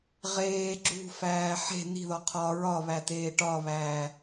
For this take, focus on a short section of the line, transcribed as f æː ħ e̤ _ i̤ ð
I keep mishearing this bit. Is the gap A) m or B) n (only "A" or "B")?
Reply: B